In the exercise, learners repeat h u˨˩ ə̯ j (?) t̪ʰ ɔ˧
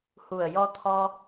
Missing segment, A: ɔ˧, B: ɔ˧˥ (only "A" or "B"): A